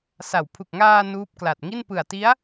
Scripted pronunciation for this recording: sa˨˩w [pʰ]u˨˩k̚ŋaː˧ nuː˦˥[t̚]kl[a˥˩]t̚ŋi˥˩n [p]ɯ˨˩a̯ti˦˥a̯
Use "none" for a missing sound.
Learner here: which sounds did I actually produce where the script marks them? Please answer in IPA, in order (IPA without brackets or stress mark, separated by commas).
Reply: pʰ, p̚, a˨˩, p